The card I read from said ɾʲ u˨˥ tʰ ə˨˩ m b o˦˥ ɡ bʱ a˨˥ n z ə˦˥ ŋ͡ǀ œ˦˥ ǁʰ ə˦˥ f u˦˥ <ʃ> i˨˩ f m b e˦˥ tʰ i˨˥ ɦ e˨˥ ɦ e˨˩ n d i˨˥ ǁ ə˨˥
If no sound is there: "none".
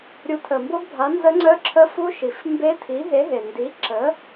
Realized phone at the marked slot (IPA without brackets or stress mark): ʃ